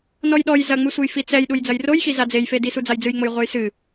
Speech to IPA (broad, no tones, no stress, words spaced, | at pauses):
nɔjɗɔj zɐŋ͡mɨsʷɘj fit͡sɛj ɗujd͡zɐjrojxi zad͡zejfedi sud͡zajd͡zɨjŋ͡moj ʁʷɛjsɨ